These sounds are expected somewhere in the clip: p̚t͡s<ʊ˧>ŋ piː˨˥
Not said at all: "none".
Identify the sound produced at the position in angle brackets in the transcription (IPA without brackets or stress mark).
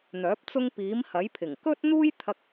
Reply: ʊ˥